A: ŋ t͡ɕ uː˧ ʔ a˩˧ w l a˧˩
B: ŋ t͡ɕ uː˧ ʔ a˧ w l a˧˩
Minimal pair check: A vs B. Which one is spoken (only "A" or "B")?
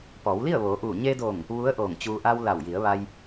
B